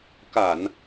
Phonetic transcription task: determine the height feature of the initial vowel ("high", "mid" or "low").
low